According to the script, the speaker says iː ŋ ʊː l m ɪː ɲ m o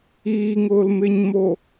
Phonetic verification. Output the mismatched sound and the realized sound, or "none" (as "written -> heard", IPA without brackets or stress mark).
none